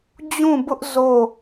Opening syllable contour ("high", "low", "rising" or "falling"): falling